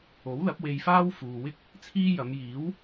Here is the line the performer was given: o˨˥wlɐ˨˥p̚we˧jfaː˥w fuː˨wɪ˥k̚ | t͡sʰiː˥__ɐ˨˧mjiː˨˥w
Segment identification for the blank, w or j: j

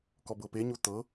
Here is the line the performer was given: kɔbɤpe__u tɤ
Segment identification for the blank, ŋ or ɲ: ɲ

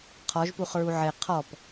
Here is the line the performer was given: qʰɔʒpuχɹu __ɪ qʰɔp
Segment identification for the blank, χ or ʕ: ʕ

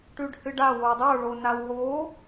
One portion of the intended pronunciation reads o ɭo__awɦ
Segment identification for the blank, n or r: n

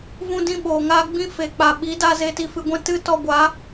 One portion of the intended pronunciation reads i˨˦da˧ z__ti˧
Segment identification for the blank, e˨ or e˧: e˧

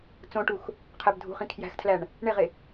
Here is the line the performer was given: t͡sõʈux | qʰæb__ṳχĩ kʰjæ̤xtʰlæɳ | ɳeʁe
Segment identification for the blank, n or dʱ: dʱ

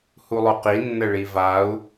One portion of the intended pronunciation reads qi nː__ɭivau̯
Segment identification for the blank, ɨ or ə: ə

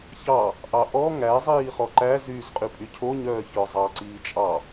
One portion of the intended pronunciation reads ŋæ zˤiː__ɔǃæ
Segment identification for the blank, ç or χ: χ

